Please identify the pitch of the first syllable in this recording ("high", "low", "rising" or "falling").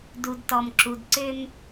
low